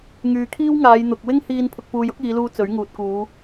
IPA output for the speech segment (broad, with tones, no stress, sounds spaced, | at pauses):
ŋ yː˨ kʰ iː˥ w ŋ aː˨˧ j n̪ ʊ˨ k̚ w ɪ˥ ŋ h iː˧ n pʰ ʊ˨ k̚ p uː˨ j ʊ˨˥ k̚ iː˨˧ l uː˧ t͡s ɵ˨˥ ɥ ŋ uː˨ t̚ k uː˨˧